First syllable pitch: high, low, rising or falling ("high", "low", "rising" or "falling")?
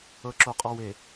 low